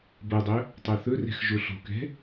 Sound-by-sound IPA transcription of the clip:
b ɤ dˤ ɵ | tˤ o θ ɵ r ɛ̤ x ʒ o ɬ o̤ k ɛ̤

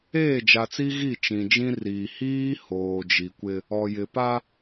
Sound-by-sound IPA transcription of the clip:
eː˦˨ d͡ʒ a˨ t͡s i˦ ɣ i˦˨ t͡ʃ ĩ˨ d͡ʒ ĩ˦ r iː˨ h iː˦ h oː˨ d͡ʒ i˨ kʷ ɪ˦ | ɔ˨ j ɪ˨ p a˦

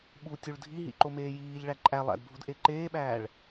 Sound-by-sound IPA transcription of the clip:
ɓ u tʲ u ɭ dʱ i ɦ ḭ ǃ o m eː j iː ʎ ɭ æ ǃʼ æ lˠ æ̰ d bʱ u d ʔ e ǃ eː ɓ æː ɭ

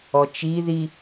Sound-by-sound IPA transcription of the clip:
ɔ t͡ʃ i ð i

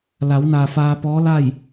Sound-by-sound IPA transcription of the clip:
l a˩˧ w n aː˩ f aː˧ p ɔː˧˥ l a˥˨ j

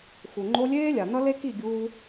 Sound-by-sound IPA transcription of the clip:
x u˨ ŋ͡ǃ o˧ lʲ eː˦ lʲ a˨ n ʌ˦ l e˦ k i˦˨ ɡʲ uː˧

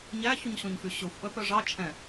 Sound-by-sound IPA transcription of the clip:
ɲ æ ç ʉ ɲ ɕ ɔ̃ ɲ f y ɕ ɵ xʷ ʔ œ p œ ʐ ɑ t͡ʃʰ ɛ̃

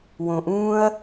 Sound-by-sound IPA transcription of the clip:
w õ˩ ʔ ũː˥ ɐ̯

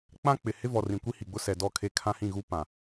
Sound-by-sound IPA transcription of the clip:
k͡p ã˦ k͡p ɪ˨ h ɪ˦ v ɔ˨ r ĩ˨ kʷ i˦ h i˨ ɡ͡b ʊ˦ s ɛ˨ d ɔ˦˨ kʰ e˦ kʰ ã˦ h ĩ˦˨ ɣ u˦ p ã˨

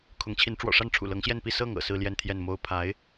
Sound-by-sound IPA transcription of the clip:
kʰ ʊ˧˥ ŋ t͡ɕʰ i˧˥ n ʈ͡ʂ w ɔ̰˨˩ ʂ a˥˩ n ʈ͡ʂʰ ṵ˨˩ l ɤ˧˥ ŋ ɕ j ɛ˥˧ n p i˥˧ s ɤ˥˩ ŋ ɤ̰˨˩ s ɹ̩˥˧ l j ɛ˥˧ n t̪ʰ j ɛ˥˩ n m o˥ ʊ̯ pʰ a˧˥ ɪ̯

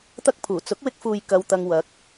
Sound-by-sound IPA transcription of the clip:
t̪ ɐ˥ k̚ pʰ uː˨˩ t͡s ʊ˨˥ k̚ w ɪ˧ k̚ f uː˨ j k ɐ˧ w t̪ ɐ˧ ŋ w ɐ˨˥ k̚

